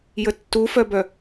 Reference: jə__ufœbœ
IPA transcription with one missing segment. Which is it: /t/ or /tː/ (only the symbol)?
tː